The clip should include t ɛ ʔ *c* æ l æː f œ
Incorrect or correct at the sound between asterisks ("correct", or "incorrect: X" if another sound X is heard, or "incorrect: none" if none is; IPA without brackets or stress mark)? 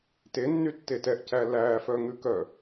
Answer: correct